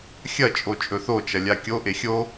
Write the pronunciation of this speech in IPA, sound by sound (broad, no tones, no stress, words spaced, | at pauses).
xʲɐt͡ʃʼo t͡ʃʼɵθot͡ʃɐlʲa kʲoʔe xʲo